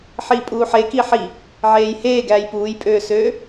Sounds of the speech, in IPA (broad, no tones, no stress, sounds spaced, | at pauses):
ħ iː pʼ uː ħ e k i ħ i | ʕ eː j h eː ɡ æː j p uː j pʼ øː s øː